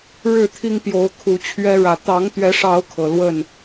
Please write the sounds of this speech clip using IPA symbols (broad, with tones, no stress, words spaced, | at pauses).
ɻɻ̩˥˨t̪ʰi˦ŋpjo˨˦ʊ̯ kʰu˨˦t͡ɕʰɥɛ˦ɻä˨˦ t̪ɑ˨˦ŋt̪ɥɛ˨˦ʂɑ˨˦ʊ̯ kʰɤ˨˩lwə˥˨n